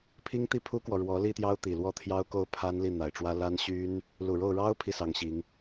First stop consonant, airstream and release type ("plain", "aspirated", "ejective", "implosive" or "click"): aspirated